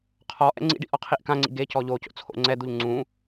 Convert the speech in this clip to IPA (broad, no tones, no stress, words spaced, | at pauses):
qʰɔʔɛ̰ ŋ͡ǀḭɖḭʔɔqʰiʔ kãŋ͡ǀḭ ɡecɔ ʎoco̰t͡sʰo̰ ŋ͡ǀɛd̪uʎ ŋ͡ǀũ